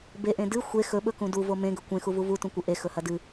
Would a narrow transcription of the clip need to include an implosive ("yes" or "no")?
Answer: yes